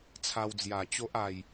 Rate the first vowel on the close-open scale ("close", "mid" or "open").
open